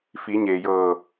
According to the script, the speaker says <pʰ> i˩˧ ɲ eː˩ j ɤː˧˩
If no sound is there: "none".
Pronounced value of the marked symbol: f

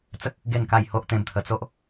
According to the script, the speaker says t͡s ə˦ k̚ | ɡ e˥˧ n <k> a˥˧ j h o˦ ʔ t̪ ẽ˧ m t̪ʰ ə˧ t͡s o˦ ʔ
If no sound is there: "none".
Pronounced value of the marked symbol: k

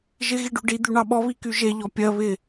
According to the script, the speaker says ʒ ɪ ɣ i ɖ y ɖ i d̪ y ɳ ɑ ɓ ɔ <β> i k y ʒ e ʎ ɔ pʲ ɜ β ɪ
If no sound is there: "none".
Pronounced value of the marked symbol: β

